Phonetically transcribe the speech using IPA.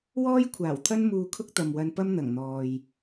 w ɔː˥ j kʷʰ aː˨˩ w t̪ʰ ɐ˥ n m uː˧ kʰ ʊ˥ k̚ t̪ ɐ˨ m w ɐ˧ n p ɐ˥ m n̪ ɐ˨˩ ŋ n̪ ɔː˨ j

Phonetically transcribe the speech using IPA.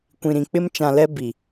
kʷ ĩ˨ ɾ ĩ˨ k͡p ɪ˦ m t͡ʃ ã˨ l ɛ˦ b i˨

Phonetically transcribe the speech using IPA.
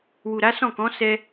w u˨ ɾ a˨˦ s ɔ̃˦˨ k ɔ̃˨˦ s ɛ˧

